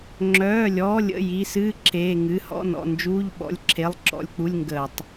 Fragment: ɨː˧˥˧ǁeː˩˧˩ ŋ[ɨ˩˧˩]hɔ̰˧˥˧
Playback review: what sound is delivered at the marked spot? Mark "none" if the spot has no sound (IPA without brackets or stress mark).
ɨ˩˧˩